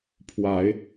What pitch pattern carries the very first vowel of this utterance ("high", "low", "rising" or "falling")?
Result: rising